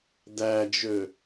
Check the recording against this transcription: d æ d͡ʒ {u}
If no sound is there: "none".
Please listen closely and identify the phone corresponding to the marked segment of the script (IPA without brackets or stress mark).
ø